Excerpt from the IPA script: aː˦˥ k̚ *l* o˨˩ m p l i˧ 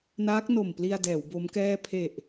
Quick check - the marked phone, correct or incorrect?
incorrect: n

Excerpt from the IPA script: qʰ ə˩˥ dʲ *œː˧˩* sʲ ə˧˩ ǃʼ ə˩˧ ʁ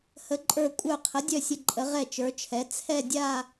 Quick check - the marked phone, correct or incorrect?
incorrect: œ˧˩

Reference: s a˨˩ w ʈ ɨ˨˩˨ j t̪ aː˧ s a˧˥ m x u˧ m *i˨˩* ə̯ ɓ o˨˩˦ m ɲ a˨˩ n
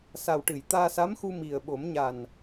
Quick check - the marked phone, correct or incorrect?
correct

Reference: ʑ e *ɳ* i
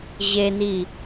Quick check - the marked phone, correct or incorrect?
incorrect: n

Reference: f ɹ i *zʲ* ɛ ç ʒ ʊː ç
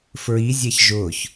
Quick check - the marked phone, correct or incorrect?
correct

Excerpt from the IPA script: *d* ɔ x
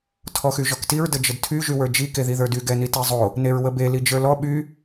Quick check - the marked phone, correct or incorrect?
incorrect: tʰ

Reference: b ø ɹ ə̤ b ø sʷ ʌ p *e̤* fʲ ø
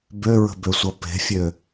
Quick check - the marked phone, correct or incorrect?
correct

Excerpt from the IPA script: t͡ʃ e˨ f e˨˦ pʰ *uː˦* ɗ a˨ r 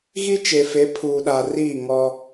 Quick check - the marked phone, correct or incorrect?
incorrect: uː˨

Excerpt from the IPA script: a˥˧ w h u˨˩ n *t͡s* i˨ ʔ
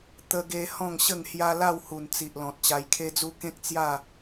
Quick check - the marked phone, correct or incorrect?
correct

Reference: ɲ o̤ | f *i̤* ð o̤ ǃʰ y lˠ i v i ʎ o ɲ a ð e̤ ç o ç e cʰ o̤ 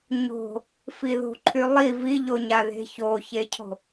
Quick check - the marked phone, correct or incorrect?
incorrect: i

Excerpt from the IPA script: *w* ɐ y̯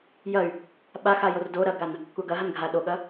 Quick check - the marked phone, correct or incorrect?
incorrect: j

